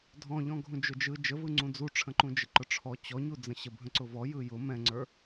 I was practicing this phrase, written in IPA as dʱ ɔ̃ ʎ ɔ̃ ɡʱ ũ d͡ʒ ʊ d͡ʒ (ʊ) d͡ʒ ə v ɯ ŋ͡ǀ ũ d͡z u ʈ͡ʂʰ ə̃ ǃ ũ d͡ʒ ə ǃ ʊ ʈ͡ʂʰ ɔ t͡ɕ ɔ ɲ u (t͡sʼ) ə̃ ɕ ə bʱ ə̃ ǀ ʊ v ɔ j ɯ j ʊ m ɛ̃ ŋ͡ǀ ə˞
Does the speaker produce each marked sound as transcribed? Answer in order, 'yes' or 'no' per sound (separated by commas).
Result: no, no